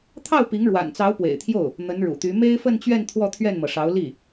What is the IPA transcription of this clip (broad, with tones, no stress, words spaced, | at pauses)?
t̪ʰɑ˥˩ʊ̯pi˧˥ŋ ɻwa̰˨˩nt͡sɑ˧˥ʊ̯pwḛ˨˩ɪ̯t̪ʰjo˥˩ʊ̯ | n̪ə˧˥nɻṵ˨˩t̪y˧˥ me˥ɪ̯fə˥˧nt͡ɕɥɛ˥˧n t̪ʰwɔ˥˧t̪ʰɥɛ˥˩nmɤ˩ʂɑ˧˥ʊ̯ li˥˩